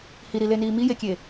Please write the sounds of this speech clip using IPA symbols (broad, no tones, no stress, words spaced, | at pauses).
hiɾileniː mijekʲe